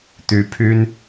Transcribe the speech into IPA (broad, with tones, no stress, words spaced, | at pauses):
t̪y˧˥pʰy˥n